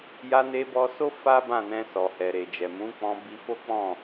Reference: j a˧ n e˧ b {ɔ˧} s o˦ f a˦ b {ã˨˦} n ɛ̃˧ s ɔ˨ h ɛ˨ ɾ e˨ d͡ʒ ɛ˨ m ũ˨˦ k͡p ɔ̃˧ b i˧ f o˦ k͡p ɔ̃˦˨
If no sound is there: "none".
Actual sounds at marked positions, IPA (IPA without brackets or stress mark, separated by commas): ɔ˧, ã˦˨